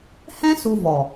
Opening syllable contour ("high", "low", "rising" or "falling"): high